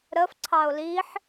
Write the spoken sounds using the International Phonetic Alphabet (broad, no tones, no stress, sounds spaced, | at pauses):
ɾ ə f ǀʰ ɑ o̯ l i ħ